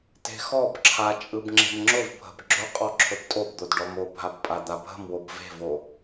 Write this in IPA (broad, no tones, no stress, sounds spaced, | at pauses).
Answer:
t e̤ x ɔ b ǁʰ a t͡ʃʼ ɯ b ŋ͡ǁ e̤ m ŋ͡ǁ ʊ v bʱ ə̤ b ɡ͡ǁ ɵ qʼ ɔ ǁʰ ɵ b tʼ o b d̪ o d ɖ ɔ m o bʱ a b pʼ a d̪ a bʱ ə̤ m w o b v e̤ v o